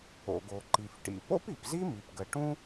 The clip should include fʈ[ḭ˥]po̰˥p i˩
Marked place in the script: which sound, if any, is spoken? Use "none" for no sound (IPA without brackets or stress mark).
ḭ˩